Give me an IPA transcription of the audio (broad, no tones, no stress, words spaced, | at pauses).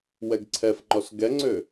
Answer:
wɛɡǀʰɛfŋ͡ǃɔs ɡɛŋ͡ǀø